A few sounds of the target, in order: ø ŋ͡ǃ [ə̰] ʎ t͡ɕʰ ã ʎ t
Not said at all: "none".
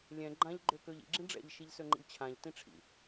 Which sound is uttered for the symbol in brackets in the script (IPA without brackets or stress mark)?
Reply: ə̰